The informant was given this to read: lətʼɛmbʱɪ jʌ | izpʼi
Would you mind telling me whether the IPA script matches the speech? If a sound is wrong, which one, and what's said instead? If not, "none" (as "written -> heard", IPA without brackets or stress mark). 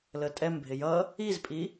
none